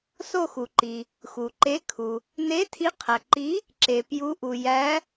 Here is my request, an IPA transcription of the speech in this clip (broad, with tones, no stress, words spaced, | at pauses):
so˦˨ xu˩ ǃi˩ | xu˩ǃe˨˥kʰu˩ | ne˨˥tʰi˨˥qʰæ˩ǃi˨˥ | ǁe˩pju˨˥ʔu˩ jæ˨˥